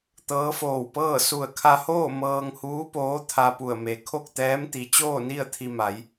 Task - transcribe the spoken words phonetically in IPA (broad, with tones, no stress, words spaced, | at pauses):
t̪ɤː˧˥foː˧˩wpɤː˥˨ su˧˩ə̯kʰa˧hoː˥˨ mɤː˧ŋhuː˧˥poː˧˥ t̪ʰa˧pu˧˩ə̯me˩˧ kʰo˥˨k̚t̪ɛː˧˥mt̪i˩˧ t͡ɕoː˥˨ni˥˨ə̯ t̪ʰi˧ma˩˧j